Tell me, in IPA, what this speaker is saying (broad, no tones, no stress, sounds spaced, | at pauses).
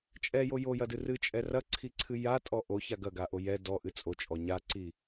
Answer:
t͡ʃʼ ɛ j o j o j ɐ d ɨ r ɨ t͡ʃʼ ɛ r ɐ ǀʰ i ǀʰ ɨ j a tʼ ɔ ʔ o ç a ɡ ɐ ɡ a ʔ o j ɛ d ɔ ʔ ɨ t͡sʼ o t͡ʃʼ ɔ ɲ a ǀ i